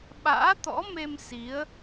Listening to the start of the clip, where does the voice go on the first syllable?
rising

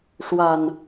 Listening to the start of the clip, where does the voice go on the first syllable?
low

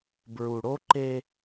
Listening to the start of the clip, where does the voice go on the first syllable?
low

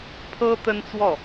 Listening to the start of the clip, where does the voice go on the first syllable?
high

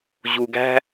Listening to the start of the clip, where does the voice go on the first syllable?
low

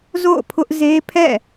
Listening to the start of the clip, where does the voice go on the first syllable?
falling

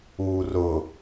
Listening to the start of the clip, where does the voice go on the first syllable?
low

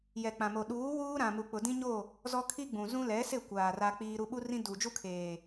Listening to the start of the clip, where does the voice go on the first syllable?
low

